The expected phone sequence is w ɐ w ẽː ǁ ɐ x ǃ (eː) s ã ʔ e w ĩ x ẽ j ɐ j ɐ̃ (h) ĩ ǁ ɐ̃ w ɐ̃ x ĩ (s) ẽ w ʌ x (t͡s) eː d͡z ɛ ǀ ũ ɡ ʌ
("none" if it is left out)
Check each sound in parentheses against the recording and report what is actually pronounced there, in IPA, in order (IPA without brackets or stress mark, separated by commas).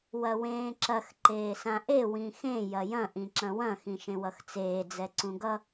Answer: eː, ʔ, ʃ, t͡s